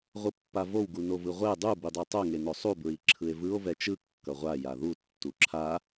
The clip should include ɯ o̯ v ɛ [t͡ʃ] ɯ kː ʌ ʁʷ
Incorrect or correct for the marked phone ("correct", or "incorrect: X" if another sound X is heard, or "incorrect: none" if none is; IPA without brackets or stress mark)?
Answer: correct